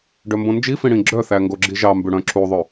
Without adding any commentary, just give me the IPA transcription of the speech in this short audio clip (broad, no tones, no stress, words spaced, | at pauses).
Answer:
ɖœmbõnd͡ʒifĩ ɽĩɡ͡ǁœθæ ŋɡoɡ͡ǁiʒɑmbʉ ɽœ̃ǁuðˤø